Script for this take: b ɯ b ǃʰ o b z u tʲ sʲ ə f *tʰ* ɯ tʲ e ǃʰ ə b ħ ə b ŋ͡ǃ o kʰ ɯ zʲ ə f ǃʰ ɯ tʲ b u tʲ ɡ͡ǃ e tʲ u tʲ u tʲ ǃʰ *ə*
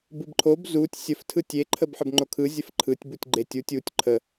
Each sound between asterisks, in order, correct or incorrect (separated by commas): correct, correct